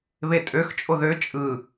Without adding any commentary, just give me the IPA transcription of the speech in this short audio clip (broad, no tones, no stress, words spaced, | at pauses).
βetʼøx t͡ʃʼoðø t͡ʃʼɯ